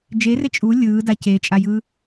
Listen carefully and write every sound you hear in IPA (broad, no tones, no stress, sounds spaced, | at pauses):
d͡ʒ e r e t͡ʃʼ u lʲ ɯː d a c e t͡ʃʼ a j ɯ